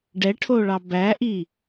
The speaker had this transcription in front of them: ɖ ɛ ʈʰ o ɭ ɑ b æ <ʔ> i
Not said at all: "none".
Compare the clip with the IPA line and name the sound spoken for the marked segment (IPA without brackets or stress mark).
ʔ